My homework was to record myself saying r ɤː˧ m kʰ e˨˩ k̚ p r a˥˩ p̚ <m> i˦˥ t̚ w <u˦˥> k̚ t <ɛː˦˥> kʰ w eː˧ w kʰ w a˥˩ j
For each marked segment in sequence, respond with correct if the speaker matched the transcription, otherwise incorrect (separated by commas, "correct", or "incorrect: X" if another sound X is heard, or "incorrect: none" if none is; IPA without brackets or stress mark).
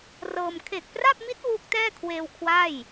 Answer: correct, correct, incorrect: ɛː˥˩